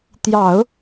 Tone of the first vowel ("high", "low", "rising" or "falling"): low